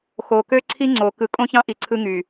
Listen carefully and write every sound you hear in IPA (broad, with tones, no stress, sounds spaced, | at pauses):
x o˨ k ø˦ ǀʰ i˦ ŋ͡ǀ o˨ k ɯ˨ kʼ õ˦ ç ɑ̃˦ ʔ i˨ ǀʰ ɯ˦ ŋ y˨